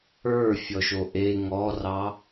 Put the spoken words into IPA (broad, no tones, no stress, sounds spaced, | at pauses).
ə˞ fʲ ɔ ʃ o ʔ e ŋ ɔ r ɑ